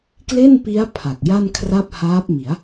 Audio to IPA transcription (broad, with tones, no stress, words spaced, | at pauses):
kle˥˩npi˦˥a̯ pʰa˨˩k̚ja˥˩nkʰra˥˩p̚ haː˦˥p̚mi˩˦a̯